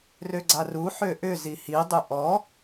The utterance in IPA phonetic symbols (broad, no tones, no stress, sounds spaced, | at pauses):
r ø ɡ͡ǀ a r u ħ ø ʔ ʏ z i h i dˤ ʏ ʔ ɔ